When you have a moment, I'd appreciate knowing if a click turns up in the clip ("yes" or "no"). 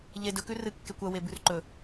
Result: yes